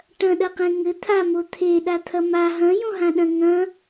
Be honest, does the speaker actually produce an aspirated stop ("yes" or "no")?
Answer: yes